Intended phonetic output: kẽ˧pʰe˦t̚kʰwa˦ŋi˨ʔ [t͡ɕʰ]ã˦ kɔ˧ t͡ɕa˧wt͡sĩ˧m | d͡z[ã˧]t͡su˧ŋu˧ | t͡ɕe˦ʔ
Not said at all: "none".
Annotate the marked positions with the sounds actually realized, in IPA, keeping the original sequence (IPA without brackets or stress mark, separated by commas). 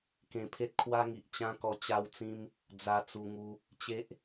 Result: t͡ɕ, a˧